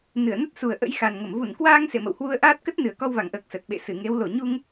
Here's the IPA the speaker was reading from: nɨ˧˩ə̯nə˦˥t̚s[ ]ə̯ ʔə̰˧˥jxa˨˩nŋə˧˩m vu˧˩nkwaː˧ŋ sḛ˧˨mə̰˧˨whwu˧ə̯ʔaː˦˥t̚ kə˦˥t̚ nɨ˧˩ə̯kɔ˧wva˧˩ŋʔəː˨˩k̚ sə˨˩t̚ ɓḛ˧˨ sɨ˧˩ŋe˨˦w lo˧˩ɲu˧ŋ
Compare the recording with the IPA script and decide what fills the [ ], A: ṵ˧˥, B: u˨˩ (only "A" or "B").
B